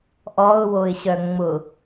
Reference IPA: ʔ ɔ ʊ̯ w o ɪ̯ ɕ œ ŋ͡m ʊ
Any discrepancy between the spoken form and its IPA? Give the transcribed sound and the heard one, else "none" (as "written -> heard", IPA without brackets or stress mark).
none